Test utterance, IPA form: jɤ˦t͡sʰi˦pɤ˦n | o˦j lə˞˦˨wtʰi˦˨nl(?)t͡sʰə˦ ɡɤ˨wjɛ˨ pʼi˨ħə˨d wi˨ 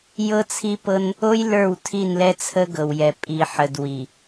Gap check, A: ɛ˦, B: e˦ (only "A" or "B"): A